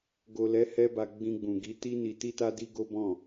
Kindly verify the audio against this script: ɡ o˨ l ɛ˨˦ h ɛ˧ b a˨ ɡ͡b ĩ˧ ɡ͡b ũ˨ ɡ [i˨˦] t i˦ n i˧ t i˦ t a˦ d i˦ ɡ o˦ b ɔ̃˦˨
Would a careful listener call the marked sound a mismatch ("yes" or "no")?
no